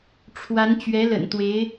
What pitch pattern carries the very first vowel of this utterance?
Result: rising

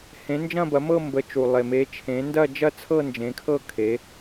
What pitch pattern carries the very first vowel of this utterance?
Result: rising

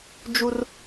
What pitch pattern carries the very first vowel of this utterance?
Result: high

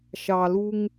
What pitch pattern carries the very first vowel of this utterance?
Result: low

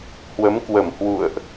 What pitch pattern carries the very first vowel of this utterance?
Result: rising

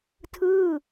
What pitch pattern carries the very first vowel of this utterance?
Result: falling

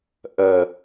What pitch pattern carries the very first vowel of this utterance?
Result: low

